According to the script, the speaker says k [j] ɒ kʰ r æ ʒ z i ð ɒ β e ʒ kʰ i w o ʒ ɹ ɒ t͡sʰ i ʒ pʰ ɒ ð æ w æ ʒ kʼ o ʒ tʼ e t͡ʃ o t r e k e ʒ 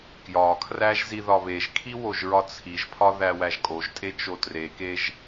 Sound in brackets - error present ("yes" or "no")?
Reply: no